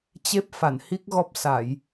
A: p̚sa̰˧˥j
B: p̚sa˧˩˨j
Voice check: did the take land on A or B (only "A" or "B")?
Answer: B